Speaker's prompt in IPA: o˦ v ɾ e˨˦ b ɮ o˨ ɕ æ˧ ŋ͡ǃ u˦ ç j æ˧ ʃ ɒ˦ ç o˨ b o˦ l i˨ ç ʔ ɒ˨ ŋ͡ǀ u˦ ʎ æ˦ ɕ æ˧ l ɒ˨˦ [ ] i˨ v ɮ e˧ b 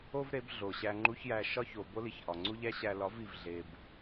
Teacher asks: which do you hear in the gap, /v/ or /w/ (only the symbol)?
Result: v